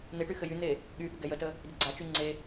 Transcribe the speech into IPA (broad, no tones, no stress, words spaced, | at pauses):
n̪eʈy xɘjyn̪e | ɠyɠɘ ɡɛjətə | dɘɡ͡ǀat͡ʃy ŋ͡ǀe